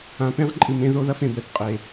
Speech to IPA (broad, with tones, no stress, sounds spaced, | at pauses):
ã˨ p ẽ˦ ʁ ǃʼ ɨ˨ m ẽ˧ ð o˦ ð ɐ˦ f ẽ˨ b ɛ˨ θ qʼ e˨